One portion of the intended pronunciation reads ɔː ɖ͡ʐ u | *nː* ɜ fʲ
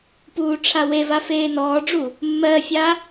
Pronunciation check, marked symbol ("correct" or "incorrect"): incorrect